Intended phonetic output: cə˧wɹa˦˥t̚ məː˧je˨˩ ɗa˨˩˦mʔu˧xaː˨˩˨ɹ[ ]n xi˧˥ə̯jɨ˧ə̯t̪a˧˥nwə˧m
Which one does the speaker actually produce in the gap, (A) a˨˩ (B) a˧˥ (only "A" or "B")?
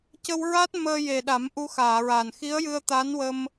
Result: A